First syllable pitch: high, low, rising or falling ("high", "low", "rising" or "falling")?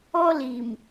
high